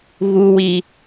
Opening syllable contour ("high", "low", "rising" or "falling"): low